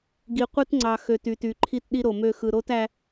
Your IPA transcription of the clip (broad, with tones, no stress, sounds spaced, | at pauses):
ɡ i˨ qʷ ɯ˦ t ŋ͡ǀ ɑ˨ x ø˨ t y˨ t y˨ ǃʰ i˦ t ɗ i˦ ɾ o˨ m ø˦˨ x ɯ˨ ɾ o˦ t æ˦